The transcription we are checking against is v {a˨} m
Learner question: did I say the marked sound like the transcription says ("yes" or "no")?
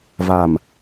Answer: yes